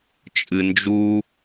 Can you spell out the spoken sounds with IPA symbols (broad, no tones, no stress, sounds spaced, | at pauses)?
t͡ʃʼ ɨ n d͡ʒ u